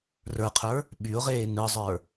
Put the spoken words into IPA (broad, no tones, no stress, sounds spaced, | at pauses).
r ə˞ qʰ ə˞ | ɓ y ʊ̯ ʁ eː n ɯ zˤ ə˞